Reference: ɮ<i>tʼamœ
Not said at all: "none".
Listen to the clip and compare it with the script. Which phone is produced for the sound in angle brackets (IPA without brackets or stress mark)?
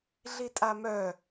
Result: i